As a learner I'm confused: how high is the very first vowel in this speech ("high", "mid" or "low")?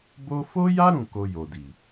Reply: mid